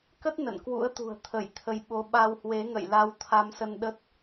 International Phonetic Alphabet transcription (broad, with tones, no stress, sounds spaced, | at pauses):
k ə˦˥ t̚ n ə̰˧˨ n k w ṵ˧˥ ə̯ t̪ ṳ˨˩ ə̯ t̪ʰ ə˧˩ j t̪ʰ ə˧ j ɓ o˧ ɓ a˧ w h w e˨˦ ŋ ə̰˧˨ j l a˧ w t̪ʰ a˧ m s ə˧ n ɗ ə˦˥ t̚